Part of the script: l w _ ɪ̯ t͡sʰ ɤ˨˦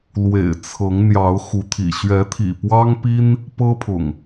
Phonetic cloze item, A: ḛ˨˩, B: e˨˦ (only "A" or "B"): A